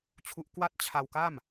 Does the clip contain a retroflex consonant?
no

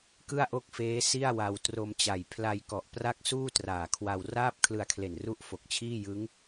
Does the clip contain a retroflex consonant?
no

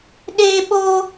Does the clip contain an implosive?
yes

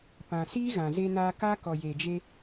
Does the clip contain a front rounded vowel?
no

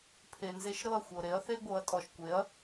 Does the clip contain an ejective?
yes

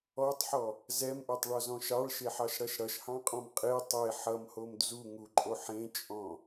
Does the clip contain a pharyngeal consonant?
yes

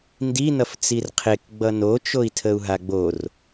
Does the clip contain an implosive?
no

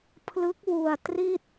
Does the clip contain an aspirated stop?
yes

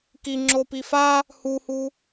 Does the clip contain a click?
yes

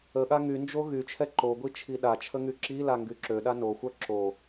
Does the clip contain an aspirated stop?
yes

